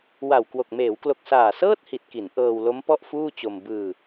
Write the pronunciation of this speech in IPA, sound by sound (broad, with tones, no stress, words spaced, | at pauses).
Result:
wa˨˩wkwo˨˩k̚ meː˩˦wklo˨˩k̚ saː˨˩sɤː˥˩t̚ hi˨˩t̚ki˩˦n ʔɤː˧wlo˦˥m pɔ˥˩ʔfuː˥˩t͡ɕo˧m bɯː˧